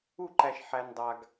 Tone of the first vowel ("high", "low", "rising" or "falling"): falling